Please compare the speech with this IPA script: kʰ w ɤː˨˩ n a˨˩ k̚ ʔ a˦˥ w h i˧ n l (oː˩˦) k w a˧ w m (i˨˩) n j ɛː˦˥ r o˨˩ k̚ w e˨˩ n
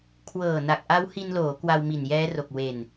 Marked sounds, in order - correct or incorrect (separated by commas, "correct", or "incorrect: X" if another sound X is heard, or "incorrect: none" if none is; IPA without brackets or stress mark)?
correct, correct